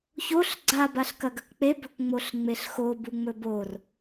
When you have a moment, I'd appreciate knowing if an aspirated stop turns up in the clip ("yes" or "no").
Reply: no